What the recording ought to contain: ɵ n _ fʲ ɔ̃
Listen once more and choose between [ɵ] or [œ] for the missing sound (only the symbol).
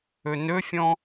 ɵ